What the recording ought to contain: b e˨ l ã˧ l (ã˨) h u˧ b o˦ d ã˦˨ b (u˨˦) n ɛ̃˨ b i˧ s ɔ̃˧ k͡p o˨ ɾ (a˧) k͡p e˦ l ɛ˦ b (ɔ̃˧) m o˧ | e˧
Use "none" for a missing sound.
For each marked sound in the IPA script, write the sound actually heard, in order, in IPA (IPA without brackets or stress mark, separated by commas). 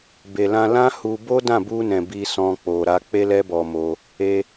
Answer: ã˦, u˧, a˧, ɔ˧